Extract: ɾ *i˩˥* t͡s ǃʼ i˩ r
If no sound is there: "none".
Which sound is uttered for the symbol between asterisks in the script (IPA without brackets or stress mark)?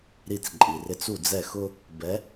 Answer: i˧